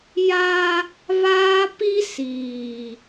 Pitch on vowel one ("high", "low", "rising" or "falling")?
high